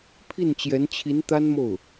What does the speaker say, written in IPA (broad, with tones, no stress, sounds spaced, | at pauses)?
pʰ i˥˩ n t͡ɕ j ɛ˧˥ n t͡ɕʰ i˧˥ n t̪ a˥ n m o˥˩ ʊ̯